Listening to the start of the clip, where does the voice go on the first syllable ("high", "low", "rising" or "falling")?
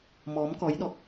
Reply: rising